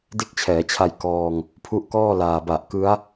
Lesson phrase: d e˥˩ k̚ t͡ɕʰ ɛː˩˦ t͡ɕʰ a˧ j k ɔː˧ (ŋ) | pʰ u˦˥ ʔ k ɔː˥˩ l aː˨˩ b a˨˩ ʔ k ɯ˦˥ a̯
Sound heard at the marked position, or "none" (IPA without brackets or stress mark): ŋ